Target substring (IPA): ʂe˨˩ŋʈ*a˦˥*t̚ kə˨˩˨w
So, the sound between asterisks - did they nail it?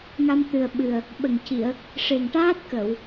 no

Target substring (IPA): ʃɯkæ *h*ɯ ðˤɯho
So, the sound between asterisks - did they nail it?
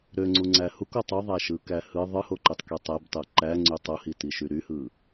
yes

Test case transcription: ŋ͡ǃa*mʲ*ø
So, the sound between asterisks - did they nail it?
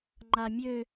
yes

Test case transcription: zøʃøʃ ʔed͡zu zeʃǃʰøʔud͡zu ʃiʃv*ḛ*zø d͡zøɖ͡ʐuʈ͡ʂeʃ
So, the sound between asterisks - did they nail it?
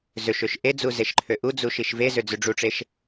no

